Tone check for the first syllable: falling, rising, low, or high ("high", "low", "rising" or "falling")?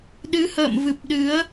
rising